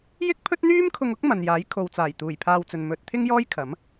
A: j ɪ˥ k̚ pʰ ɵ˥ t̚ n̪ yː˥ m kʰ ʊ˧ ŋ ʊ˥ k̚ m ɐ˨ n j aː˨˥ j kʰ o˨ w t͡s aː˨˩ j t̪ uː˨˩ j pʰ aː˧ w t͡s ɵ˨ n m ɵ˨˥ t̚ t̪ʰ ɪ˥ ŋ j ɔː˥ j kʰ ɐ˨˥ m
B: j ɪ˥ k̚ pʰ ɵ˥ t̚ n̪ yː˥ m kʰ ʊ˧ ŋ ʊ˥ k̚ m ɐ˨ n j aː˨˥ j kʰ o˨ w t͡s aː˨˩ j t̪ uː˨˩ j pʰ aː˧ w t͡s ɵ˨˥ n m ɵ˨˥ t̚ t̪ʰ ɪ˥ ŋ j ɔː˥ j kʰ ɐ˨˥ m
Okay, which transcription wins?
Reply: A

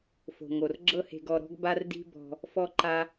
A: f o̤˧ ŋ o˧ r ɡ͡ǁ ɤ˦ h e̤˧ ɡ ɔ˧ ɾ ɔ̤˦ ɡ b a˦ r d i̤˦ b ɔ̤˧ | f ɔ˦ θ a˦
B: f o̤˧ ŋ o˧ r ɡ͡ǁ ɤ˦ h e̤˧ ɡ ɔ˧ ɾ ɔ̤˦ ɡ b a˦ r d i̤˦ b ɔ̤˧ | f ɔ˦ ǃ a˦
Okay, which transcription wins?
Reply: B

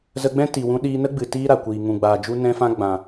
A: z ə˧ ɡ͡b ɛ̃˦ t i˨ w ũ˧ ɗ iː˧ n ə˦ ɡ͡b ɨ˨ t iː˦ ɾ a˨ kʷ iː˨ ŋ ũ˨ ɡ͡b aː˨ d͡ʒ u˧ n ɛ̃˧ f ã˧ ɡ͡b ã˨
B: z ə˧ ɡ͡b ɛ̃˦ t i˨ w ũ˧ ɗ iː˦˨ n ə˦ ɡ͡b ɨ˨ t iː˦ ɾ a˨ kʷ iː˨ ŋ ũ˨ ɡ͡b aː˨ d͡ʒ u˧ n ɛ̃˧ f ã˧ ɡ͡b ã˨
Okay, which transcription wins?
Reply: A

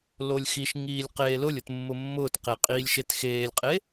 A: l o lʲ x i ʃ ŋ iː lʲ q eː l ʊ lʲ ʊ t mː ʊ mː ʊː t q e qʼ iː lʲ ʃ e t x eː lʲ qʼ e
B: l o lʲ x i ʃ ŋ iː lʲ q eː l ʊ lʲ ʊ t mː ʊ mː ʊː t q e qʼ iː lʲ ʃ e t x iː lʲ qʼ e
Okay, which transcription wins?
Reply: A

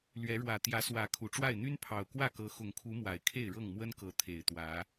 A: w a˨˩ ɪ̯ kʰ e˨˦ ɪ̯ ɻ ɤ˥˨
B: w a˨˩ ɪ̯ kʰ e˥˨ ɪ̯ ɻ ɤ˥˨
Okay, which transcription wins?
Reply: B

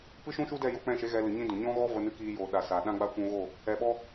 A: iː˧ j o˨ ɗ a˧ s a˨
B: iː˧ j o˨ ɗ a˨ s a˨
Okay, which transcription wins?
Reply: B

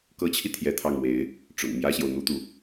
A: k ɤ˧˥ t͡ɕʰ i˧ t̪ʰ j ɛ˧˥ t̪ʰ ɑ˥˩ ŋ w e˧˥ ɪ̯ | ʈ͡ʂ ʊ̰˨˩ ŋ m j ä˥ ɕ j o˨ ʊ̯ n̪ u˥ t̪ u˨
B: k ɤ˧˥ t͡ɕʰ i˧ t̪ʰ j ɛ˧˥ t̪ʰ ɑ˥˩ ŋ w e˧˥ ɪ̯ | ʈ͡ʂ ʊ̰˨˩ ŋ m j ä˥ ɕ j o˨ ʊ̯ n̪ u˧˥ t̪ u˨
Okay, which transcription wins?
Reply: A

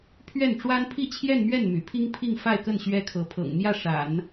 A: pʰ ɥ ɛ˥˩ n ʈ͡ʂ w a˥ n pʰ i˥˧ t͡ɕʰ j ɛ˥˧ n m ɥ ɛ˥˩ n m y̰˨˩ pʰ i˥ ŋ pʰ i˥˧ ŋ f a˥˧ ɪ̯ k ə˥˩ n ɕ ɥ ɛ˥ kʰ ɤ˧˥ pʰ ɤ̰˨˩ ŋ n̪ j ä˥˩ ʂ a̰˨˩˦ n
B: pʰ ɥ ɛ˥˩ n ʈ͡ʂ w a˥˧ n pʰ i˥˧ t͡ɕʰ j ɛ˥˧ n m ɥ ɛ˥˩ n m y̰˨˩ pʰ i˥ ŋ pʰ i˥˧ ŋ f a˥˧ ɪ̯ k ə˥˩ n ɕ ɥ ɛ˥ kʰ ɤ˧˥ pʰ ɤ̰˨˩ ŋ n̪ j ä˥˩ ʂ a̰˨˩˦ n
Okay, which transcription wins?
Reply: A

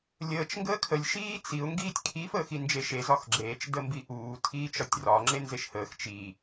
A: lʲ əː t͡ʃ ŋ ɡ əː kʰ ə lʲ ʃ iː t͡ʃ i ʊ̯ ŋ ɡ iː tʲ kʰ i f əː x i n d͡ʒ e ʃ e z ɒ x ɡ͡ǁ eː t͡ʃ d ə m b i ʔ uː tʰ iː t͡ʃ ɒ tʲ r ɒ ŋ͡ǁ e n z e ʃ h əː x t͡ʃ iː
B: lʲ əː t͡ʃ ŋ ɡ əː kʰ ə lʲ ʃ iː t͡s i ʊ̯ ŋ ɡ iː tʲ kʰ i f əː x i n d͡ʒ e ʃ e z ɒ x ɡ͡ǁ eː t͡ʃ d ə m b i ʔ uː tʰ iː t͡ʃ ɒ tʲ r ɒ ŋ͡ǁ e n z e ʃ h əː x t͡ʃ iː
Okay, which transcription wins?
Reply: B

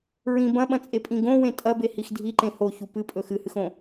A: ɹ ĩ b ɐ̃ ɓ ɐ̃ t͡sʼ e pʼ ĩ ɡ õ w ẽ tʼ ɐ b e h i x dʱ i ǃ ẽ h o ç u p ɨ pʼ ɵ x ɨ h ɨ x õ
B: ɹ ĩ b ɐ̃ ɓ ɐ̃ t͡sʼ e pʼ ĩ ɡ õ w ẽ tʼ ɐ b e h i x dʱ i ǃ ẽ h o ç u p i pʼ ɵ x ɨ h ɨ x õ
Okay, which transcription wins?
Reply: A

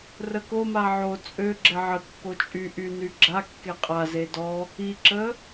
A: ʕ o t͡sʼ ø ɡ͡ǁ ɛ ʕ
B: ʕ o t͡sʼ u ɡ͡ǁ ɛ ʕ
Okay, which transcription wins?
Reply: A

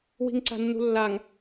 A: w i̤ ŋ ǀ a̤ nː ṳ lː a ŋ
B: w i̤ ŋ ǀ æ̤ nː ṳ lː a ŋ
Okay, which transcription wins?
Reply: A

